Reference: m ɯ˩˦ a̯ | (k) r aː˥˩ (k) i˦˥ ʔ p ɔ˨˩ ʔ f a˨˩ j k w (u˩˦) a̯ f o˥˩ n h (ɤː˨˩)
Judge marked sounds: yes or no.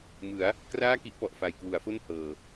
yes, yes, yes, yes

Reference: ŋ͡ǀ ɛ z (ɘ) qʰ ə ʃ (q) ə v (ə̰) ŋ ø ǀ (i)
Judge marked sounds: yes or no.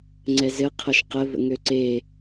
yes, yes, yes, no

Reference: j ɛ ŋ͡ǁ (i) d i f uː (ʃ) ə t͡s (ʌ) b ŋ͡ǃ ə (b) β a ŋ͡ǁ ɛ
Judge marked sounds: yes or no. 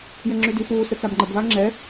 no, no, no, yes

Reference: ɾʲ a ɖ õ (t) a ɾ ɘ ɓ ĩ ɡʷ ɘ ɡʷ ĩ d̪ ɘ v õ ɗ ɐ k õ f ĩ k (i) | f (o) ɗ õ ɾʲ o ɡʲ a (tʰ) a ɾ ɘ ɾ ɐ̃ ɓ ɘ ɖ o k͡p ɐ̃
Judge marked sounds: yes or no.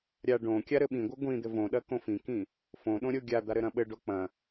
no, no, no, no

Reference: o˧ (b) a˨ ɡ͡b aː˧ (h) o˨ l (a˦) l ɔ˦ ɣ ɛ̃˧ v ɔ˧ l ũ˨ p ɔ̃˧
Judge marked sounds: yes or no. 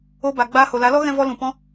yes, yes, no

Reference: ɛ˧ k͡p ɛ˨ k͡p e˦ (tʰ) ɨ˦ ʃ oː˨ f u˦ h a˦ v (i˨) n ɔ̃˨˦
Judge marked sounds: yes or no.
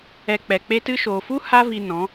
no, no

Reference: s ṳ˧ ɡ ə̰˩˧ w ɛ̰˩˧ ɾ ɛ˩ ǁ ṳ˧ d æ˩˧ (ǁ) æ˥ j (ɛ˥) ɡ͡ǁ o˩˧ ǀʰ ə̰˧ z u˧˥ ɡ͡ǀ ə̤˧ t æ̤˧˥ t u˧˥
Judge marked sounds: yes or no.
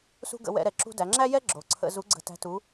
no, yes

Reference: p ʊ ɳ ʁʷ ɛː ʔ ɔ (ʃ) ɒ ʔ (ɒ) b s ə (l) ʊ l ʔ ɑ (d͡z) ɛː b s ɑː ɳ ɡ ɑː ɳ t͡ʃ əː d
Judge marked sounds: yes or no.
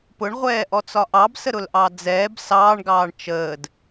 no, no, no, yes

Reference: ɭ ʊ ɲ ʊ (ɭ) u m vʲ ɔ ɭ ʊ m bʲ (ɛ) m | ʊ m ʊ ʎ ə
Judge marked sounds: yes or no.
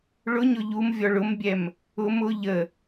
no, yes

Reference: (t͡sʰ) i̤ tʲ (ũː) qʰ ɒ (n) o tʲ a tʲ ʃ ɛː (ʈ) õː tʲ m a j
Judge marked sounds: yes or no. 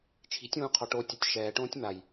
no, yes, no, yes

